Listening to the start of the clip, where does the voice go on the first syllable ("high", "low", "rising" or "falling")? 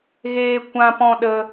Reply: high